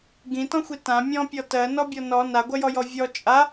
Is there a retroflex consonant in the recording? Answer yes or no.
no